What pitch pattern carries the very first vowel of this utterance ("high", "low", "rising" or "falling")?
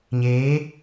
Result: rising